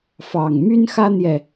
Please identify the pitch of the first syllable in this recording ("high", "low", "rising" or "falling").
low